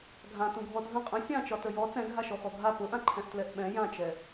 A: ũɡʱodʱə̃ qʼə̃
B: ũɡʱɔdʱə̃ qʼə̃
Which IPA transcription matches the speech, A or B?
B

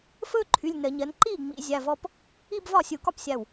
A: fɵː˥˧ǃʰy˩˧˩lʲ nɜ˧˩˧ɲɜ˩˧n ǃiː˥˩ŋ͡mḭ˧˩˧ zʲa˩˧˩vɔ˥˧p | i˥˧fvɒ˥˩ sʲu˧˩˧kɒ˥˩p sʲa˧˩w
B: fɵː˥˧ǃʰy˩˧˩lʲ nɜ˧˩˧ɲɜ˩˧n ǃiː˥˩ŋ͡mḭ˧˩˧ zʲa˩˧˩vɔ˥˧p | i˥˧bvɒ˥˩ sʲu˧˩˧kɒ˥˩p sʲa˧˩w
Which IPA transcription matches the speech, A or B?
B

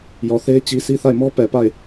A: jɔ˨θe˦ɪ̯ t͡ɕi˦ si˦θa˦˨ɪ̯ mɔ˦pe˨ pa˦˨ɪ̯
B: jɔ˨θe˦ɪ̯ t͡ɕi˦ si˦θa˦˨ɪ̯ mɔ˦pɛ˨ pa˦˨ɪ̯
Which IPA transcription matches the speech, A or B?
B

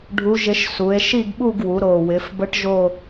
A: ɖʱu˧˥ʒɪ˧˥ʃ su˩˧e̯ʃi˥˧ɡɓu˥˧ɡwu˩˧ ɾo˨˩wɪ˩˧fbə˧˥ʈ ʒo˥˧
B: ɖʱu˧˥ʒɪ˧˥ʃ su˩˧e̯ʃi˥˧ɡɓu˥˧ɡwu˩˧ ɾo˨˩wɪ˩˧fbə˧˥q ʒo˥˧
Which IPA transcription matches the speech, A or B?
A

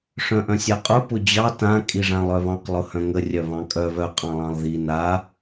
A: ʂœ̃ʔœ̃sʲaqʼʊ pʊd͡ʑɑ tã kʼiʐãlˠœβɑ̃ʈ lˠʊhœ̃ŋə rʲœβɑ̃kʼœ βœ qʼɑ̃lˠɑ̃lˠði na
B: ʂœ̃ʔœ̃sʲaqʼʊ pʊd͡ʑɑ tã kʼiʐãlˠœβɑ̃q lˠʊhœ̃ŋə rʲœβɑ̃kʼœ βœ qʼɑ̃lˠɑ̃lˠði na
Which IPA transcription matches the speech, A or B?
B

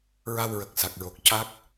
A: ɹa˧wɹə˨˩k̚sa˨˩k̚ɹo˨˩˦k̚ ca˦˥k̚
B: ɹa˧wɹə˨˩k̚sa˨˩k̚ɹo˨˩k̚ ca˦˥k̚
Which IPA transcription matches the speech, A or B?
B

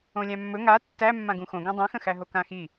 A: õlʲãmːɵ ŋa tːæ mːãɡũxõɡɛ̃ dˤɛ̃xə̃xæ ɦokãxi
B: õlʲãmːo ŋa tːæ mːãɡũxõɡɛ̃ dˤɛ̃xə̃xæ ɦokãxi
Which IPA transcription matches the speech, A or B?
A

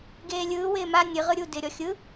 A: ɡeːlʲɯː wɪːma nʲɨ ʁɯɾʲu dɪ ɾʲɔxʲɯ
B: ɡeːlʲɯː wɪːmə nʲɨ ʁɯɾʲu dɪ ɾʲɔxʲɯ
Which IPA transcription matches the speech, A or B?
A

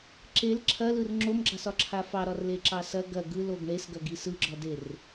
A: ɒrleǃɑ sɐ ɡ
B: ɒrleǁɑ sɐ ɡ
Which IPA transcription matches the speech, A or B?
B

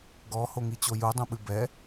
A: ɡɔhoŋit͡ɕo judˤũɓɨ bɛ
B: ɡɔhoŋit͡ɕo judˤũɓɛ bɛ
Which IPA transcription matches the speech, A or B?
A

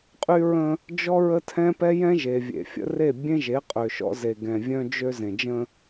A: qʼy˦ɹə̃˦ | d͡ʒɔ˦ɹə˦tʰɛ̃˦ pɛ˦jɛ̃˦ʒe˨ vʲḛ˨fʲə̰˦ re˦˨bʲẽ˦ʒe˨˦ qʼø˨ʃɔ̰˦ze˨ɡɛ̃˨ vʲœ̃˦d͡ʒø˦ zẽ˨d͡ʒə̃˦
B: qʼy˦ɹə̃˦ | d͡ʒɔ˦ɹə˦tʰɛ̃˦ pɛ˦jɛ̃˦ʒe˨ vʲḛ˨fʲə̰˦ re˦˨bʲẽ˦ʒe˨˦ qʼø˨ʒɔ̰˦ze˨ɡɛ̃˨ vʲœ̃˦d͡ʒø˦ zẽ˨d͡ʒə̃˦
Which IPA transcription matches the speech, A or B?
A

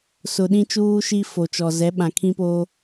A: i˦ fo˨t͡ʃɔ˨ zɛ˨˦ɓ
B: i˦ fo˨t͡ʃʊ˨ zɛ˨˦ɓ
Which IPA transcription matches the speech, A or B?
A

